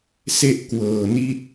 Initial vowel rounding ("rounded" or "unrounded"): unrounded